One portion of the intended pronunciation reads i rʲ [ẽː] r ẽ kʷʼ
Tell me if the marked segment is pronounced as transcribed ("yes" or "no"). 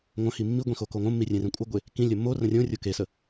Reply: no